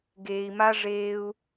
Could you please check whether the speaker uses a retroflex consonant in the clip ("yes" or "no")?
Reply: yes